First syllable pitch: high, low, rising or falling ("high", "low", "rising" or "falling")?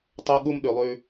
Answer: high